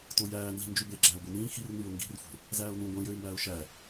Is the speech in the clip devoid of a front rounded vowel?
no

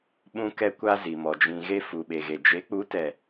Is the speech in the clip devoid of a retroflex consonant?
yes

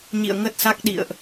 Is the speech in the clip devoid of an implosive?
no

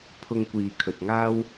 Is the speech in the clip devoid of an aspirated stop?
no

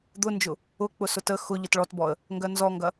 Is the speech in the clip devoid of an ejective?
yes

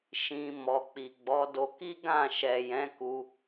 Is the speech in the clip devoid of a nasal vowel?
no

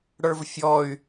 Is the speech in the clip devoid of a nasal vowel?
yes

